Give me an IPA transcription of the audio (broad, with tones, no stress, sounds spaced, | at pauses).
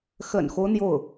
x ə̰˨˩ n x o˦ ʊ̯ n̪ j o˥˩ ʊ̯